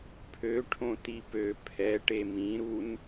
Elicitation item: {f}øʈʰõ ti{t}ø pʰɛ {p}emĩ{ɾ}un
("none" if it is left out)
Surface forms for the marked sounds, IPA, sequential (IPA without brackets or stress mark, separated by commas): pʰ, p, ʈ, ɾ